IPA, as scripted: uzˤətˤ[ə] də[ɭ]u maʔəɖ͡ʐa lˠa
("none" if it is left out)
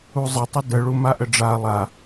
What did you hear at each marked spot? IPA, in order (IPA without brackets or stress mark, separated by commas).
ə, ɭ